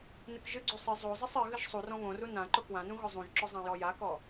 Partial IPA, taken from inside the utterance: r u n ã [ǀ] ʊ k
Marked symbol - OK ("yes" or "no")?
no